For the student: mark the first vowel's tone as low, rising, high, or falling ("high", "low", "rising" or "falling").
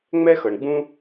high